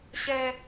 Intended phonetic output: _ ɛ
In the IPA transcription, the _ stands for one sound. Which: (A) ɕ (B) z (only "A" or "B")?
A